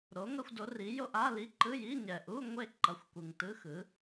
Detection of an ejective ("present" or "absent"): absent